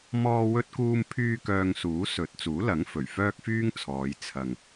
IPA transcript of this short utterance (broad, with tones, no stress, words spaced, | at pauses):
mɔː˧wɵ˧t̚kuː˧mpʰyː˧ kœː˧ŋsuː˨˥sɵ˨˥t̚ t͡suː˨˥lɐ˨˥ŋfɵ˨˩ɥ fœː˧k̚ fyː˥ŋt͡sʰɔː˨˧j t͡sʰɐ˨ŋ